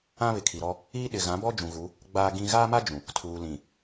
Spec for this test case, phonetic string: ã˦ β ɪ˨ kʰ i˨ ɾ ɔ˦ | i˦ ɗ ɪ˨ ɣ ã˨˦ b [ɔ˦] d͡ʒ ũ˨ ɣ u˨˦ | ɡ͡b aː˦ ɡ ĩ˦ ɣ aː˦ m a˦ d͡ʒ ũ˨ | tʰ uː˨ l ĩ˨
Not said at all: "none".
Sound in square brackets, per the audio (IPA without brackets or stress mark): ɔ˦